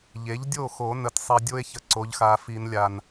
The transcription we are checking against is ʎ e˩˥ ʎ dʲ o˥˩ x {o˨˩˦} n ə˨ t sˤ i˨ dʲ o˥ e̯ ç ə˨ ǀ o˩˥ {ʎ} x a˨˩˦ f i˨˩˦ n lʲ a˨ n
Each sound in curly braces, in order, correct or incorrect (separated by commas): correct, correct